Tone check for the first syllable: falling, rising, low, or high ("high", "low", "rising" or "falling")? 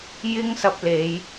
high